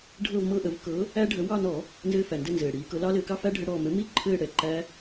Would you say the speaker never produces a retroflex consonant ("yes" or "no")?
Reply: no